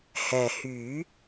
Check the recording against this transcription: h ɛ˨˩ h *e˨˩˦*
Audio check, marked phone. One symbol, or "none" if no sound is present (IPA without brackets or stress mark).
y˨˩˦